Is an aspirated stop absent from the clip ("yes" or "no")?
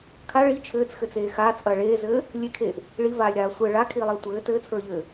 no